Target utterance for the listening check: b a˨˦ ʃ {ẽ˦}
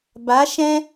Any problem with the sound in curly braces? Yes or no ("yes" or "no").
yes